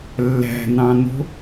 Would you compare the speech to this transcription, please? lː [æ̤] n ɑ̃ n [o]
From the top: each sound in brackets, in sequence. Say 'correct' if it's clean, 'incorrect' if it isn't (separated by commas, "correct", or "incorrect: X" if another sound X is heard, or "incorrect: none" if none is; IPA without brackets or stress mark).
correct, incorrect: o̤